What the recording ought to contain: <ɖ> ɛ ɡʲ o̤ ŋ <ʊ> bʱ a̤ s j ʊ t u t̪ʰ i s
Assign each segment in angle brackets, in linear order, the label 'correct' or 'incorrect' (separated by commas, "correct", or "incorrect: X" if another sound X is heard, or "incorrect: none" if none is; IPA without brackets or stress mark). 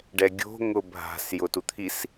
correct, correct